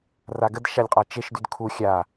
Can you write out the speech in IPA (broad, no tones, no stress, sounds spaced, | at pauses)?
r a ɡ ə d ʃ a lʲ qʼ a t͡ʃ e ʃ d y d kʰ u xʲ a